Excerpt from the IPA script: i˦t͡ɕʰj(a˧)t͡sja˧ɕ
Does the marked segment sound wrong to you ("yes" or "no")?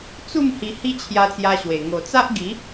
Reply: no